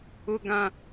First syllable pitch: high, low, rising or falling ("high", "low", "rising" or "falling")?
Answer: low